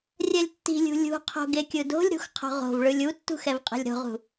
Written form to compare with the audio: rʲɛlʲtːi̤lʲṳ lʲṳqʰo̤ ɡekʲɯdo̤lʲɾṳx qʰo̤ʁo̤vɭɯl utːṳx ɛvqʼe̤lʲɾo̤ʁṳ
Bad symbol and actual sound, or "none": l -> lʲ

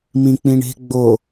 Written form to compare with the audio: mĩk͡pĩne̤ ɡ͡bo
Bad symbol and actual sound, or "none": n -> ɳ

